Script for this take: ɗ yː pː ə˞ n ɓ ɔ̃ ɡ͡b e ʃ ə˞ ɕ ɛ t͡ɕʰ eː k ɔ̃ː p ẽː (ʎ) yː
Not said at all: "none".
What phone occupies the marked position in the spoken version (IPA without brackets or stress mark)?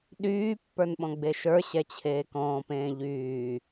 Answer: ʎ